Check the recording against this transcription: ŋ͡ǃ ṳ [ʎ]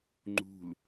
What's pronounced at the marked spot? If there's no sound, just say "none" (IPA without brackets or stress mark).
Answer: l